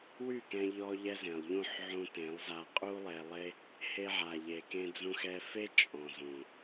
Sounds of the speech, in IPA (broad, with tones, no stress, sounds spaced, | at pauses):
w y˦˨ k ɛ̃˧ ʎ ɔ˧ ʎ ɛ˧ z ẽ˨ lˠ ʎ ũ˦˨ ħ ʕ ũ˧ t ẽ˨˦ lˠ z a˧ qʼ u˦ lˠ e˧ lˠ e˦ | h e˧ ʕ a˨ ʎ e˨ k ẽ˧ d͡z ũ˧ x ɛ˧ f e˦ t͡ʃʼ ɔ̃˨ z ũ˨